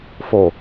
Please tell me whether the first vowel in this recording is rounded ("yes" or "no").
yes